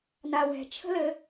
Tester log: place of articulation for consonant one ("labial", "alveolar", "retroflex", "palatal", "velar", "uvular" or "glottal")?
alveolar